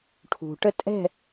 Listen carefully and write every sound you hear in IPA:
ʈʰṳʈə tʼɛ̤

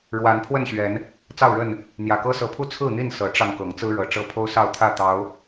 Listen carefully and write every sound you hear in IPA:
ɻwa˨˦npʰwə˥˨nɕɥɛ˨˦n | t͡sɑ˥˨ʊ̯ɻə˥˨n | n̪jä˨˩kɤ˦sɤ˨˦pʰu˥˨ t͡sʰɹ̩˥˨n̪i˥˨n sɤ˨˦ʈ͡ʂɑ˧ŋ kɤ˨˦ŋt͡sɹ̩˦ɻɤ˨˩ ʈ͡ʂɤ˥˨pʰo˦ʊ̯sɑ˥˨ʊ̯t̪ʰä˥˨ t̪ɑ˨˦ʊ̯

